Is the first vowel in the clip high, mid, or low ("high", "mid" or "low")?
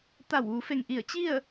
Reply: low